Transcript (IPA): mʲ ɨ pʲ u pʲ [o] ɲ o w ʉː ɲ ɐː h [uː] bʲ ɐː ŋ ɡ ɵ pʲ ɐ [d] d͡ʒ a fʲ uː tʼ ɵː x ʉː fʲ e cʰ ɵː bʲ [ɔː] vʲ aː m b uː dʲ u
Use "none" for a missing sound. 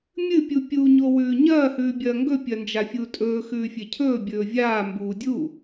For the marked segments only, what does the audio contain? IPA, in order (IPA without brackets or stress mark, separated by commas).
u, ʉː, n, ɵː